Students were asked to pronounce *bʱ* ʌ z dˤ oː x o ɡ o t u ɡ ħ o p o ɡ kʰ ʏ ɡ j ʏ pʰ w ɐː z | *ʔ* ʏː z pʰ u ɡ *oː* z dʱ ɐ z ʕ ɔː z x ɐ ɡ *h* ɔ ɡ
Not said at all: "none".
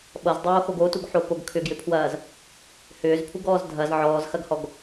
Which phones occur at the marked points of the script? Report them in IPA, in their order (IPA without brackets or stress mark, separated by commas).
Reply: ɓ, h, ɔː, h